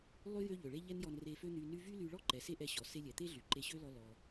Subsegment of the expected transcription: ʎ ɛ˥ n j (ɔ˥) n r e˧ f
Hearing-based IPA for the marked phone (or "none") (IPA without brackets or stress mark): ɔ˧